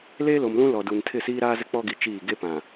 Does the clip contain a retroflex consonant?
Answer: no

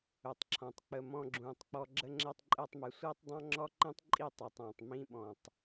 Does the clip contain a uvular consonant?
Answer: no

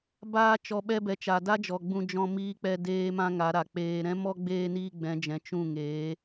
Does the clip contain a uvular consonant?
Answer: no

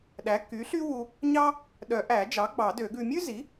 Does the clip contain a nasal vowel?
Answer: no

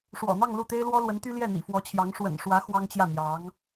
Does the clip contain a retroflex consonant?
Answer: yes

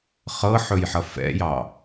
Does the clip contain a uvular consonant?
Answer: yes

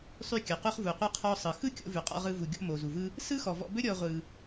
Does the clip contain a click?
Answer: no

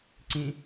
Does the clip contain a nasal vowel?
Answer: yes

